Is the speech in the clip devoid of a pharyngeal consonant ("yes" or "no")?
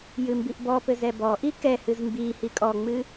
yes